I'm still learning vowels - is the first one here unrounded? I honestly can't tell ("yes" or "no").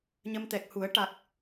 yes